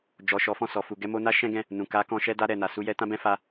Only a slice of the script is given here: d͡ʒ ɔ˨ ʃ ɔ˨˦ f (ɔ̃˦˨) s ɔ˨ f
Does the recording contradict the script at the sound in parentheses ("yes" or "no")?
no